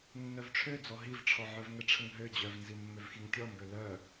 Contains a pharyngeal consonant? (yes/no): yes